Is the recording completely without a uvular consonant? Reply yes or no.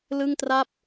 yes